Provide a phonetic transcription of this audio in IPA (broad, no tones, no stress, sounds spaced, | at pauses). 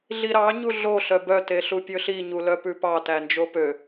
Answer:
ɮ i ɾ ɑ ɲ u ɮ o ɬ œ b œ t e ɬ u pʲ ɵ ɬ i ɲ u l œ p ʉ p ɑ t æ n d͡ʒ o p ø